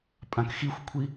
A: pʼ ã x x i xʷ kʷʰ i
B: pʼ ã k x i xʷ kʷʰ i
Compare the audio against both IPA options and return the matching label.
B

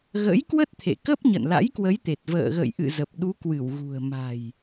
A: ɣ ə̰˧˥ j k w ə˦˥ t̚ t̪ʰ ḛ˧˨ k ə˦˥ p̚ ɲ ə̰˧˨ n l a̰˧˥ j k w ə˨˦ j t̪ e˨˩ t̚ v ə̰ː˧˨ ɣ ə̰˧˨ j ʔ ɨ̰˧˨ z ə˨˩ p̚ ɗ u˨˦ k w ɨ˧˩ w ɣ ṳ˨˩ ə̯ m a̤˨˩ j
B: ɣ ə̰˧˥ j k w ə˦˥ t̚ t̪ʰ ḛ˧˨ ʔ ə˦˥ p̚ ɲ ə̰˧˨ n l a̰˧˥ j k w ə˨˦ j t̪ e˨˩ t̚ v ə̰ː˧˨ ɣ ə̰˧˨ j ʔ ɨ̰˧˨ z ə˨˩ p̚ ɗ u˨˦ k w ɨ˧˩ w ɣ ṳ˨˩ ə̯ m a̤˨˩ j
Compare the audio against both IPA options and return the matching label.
A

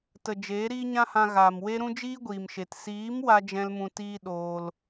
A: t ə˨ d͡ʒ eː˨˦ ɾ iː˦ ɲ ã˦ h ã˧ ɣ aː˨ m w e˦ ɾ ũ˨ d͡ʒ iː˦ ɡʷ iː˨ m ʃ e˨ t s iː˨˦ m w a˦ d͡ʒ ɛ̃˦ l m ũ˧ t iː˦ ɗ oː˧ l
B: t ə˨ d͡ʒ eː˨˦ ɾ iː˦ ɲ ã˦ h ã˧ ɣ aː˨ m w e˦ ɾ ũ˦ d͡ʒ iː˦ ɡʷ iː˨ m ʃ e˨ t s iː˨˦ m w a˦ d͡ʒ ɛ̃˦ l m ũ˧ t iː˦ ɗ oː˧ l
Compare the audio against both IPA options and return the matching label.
B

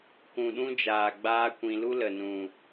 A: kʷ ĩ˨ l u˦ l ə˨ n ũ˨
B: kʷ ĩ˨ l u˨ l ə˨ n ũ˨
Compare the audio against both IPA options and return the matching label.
A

